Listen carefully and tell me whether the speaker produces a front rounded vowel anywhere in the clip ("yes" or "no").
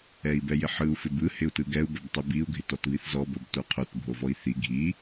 no